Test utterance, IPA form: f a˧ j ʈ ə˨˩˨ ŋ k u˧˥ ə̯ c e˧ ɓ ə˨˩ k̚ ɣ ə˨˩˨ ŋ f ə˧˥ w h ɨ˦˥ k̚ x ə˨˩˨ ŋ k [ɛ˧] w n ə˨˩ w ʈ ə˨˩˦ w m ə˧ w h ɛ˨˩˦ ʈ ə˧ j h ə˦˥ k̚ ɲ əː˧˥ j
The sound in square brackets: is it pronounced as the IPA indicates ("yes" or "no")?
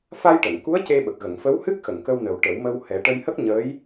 no